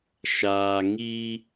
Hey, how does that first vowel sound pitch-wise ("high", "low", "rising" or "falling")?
low